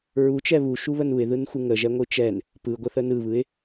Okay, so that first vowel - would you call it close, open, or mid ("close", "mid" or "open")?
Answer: close